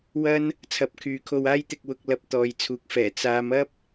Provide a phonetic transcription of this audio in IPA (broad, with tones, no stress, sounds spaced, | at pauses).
w ɐ˥ n | t͡sʰ ɐ˨˥ p̚ kʰ yː˨˧ kʰ o˧ w aː˥ j t̪ ɪ˧ k̚ w ʊ˧ k̚ l ɐ˧ p̚ t̪ ɔː˨ j t͡sʰ uː˨˥ k̚ f ɛː˨˩ t͡s aː˨˧ m ɐ˥ p̚